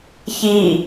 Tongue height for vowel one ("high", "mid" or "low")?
high